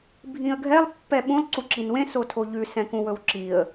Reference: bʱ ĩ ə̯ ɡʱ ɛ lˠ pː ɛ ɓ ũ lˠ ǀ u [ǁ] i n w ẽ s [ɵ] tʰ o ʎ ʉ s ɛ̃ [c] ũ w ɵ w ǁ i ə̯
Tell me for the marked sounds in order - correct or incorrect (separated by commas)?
correct, incorrect, incorrect